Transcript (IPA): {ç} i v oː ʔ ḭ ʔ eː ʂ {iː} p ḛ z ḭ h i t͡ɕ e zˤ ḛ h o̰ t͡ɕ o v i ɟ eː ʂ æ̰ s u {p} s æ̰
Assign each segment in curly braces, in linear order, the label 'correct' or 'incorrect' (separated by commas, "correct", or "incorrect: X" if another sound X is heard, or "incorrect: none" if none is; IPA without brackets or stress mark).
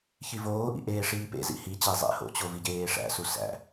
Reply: correct, correct, incorrect: none